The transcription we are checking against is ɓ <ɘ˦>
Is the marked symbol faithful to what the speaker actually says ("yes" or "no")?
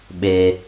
no